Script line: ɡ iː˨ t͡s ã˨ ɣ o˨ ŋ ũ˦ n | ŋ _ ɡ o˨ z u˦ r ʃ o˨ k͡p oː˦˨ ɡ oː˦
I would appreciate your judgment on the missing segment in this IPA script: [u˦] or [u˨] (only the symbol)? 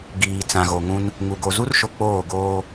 u˨